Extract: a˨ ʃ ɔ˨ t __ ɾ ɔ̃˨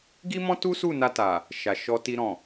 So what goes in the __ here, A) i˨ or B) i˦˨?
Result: A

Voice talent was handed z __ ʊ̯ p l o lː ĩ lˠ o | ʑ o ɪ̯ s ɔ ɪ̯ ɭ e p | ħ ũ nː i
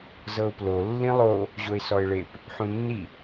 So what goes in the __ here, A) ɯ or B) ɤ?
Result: B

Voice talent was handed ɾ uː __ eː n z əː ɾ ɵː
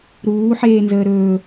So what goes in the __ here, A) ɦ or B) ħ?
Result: B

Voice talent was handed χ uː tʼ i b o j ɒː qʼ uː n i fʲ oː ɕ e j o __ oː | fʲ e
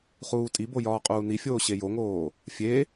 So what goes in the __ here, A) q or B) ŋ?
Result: B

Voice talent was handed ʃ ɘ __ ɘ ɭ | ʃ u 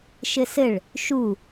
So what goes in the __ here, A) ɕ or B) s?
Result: B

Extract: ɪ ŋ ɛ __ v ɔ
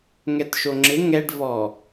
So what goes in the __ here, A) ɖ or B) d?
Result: A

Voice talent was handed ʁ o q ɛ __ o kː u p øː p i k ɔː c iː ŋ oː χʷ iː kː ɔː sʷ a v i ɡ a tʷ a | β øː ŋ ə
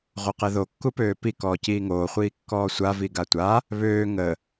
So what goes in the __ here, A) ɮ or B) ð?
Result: B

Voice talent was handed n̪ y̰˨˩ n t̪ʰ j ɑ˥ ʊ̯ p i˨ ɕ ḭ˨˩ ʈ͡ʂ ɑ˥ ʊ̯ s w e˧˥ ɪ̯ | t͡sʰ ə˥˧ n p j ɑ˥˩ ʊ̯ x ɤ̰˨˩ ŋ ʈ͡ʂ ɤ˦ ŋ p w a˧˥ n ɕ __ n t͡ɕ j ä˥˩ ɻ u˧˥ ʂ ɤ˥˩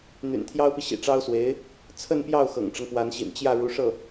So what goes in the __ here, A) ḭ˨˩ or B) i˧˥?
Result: A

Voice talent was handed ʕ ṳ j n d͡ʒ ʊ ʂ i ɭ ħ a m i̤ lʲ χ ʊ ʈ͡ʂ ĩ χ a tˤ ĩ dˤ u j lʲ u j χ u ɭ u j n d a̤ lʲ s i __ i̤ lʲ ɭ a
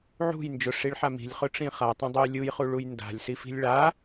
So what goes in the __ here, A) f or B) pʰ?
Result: A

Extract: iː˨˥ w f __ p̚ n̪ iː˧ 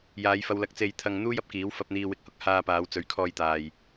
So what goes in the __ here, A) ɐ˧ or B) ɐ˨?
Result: A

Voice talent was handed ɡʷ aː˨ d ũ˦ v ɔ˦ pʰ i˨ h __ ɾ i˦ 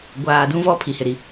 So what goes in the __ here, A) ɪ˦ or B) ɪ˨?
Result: B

